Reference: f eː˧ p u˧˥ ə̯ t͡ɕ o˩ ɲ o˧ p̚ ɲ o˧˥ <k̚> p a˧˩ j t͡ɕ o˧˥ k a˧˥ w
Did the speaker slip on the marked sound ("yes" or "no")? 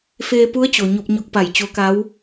no